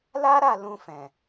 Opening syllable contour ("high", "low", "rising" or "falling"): high